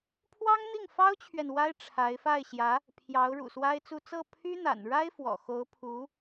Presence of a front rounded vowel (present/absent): present